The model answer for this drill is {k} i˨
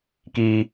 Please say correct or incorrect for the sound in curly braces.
correct